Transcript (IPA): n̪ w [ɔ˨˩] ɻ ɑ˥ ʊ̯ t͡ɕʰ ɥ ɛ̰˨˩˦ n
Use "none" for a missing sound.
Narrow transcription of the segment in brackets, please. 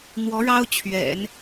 ɔ˧˥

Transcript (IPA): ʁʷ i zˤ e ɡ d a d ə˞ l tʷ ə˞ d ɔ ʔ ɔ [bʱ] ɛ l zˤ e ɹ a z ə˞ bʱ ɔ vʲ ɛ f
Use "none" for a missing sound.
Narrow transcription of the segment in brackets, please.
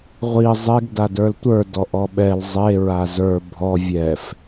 ɓ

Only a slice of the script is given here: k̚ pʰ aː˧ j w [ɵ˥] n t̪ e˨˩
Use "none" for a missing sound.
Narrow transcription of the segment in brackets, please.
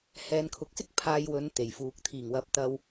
ɵ˨˧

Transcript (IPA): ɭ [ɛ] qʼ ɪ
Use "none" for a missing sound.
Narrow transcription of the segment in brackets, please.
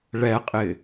ɛ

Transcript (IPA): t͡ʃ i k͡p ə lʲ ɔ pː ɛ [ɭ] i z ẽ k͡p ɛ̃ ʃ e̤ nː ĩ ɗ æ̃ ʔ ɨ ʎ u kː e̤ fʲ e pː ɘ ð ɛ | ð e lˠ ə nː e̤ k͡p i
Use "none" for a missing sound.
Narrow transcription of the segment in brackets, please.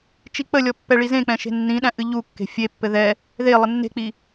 ɭ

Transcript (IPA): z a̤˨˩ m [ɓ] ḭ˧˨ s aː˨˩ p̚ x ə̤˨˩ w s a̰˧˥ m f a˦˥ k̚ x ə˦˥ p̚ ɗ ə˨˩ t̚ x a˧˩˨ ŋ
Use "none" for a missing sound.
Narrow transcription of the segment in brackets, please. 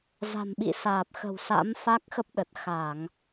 ɓ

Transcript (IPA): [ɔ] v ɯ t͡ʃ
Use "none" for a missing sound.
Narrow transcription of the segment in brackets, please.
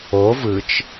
o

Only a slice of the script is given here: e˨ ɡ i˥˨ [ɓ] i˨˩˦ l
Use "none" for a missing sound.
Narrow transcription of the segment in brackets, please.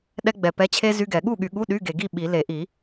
ɓ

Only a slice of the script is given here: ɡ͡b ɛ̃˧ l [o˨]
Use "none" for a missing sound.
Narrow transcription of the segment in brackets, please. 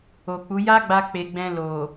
o˨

